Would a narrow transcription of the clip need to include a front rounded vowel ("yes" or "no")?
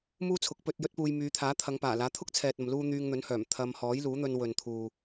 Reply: yes